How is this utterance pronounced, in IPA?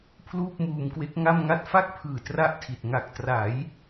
pʰ l uː˥˩ p̚ m uː˧ m k w e˦˥ k̚ ŋ a˥˩ m ŋ a˥˩ t̚ f a˥˩ k̚ pʰ ɯː˨˩ t r a˥˩ ʔ tʰ i˨˩ t̚ ŋ a˨˩ k̚ t r a˩˦ j

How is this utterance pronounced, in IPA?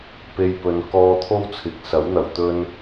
p e˧ j p ɵ˨ n k ɔː˧ t̪ʰ o˥ w t͡sʰ ɪ˨ k̚ s ɐ˨˥ w n̪ ɐ˨˩ w t̪ ɵ˧ n

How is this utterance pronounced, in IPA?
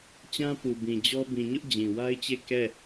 t͡ɕ ã˦ p u˨ b ĩ˨ d͡ʑ ɔ˦ b ĩ˨ ɲ ʊ˦ ʔ d͡ʑ ĩ˨ w a˦ ɪ̯ t͡ɕ e˦˨ k ɛ˦˨

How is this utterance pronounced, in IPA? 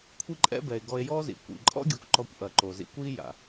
kʷʰ i˦ ǃʼ ɛ̰˦ b ɛ˨ e̯ ɡ ɔ˧ e̯ j ɔ˦ z ḭ˨ kʷ ḭ˨ ǃʼ ɔ̰˦ ɡʲ o˧ kʷ ǃ ɔ˧ kʷ ʔ ɐ˨ ǃ o˨ z ḭ˧ kʷ i˦ j a̰˨

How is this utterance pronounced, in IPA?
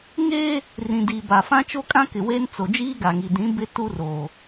ŋ eː˦ | r ĩ˨ d i˨ b a˨ f ã˦ t͡ʃ o˦ kʼ ã˦ k ɪ˨ w eː˦ n t͡s o˨ d͡ʒ iː˦ ɡ a˨ ŋ i˨ d ĩ˨˦ b ɪ˦ t u˦ r o˨

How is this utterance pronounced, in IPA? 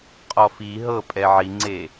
qʼ ɔ f i ɦ ɤ pʼ ɛ ʕ i ŋ͡ǀ e

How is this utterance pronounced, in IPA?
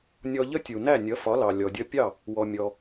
nʲ ɔ˧ ʎ ə˥ tʲ u˩ n æ˥˩ nʲ ʌ˩˥ f ɒ˩˥ l ɑ˩ lʲ ɔ˩ dʲ ʌ˧ pʲ ɑ˥˩ | w ɔ˩ mʲ ɔ˩

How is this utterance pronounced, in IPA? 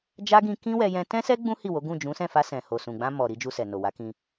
d͡ʒ a˦ ɡ ĩ˧ k ĩ˦ w ɛ˧ j ɛ̃˧ t ɛ̃˦ s ɛ˦ ɡ͡b ũ˦ h i˦˨ w o˨˦ ɡ ũ˦˨ d͡ʒ ũ˨˦ s ɛ̃˦˨ f a˧ s ɛ̃˨ h o˨ s ũ˨ ɡ͡b ã˧ m ɔ˨ ɾ i˧ d͡ʒ u˧ s ɛ˨ n o˨ w a˨˦ k ĩ˧

